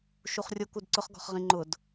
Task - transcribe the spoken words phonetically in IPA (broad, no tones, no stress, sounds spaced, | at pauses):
ʃ u χ rʲ ʊ k u d ǀ ʊ χ ɡ ɔ̤ χ ʁ ĩ ŋ͡ǃ ʊ d